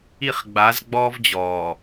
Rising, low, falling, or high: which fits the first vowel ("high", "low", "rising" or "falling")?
falling